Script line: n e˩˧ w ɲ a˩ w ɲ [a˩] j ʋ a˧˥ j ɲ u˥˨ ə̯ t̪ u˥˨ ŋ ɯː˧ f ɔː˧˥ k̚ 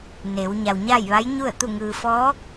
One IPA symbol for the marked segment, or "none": a˥˨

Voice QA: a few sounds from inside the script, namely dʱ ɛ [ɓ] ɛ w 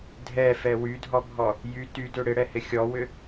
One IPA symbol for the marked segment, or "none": f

